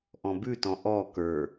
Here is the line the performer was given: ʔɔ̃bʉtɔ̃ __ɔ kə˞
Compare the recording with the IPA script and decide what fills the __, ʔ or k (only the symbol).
ʔ